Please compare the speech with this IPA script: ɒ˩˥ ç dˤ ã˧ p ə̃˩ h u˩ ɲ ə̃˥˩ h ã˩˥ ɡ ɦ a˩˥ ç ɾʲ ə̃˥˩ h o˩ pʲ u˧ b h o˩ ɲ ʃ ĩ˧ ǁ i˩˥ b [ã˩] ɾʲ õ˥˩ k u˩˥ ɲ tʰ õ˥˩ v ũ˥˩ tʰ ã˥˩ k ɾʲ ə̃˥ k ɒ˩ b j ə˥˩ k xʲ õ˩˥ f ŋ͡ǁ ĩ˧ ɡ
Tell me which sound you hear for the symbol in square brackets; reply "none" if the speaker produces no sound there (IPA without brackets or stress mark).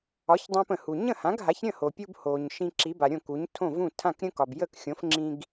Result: a˩